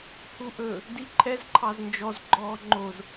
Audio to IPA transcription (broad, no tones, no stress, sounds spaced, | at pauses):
h u ʔ ɵ | d i ǃʰ ɛ z ǃʰ ɑ z n d͡ʒ ɔ z ɡ͡ǃ ɔː ŋ͡ǃ o z